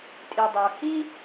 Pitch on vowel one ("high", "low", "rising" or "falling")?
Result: low